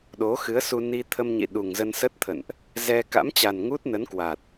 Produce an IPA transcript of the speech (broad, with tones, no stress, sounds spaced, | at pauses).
ɗ o˨˦ x ɨ˨˦ ə̯ s u˧ n i˧ t̪ʰ ə˧ m ɲ ḭ˧˨ ɗ u˨˩ ŋ z ə˧ n s ə˦˥ t̚ t̪ʰ ə̰˧˨ n ʔ | z ɛ˧ k a̰˧˥ m t͡ɕ a˨˩ n ŋ u˦˥ t̚ n ə˨˦ n k w a˨˩ t̚